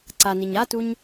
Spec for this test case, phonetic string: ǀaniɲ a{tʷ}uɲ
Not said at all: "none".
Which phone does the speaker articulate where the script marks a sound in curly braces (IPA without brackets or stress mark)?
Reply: t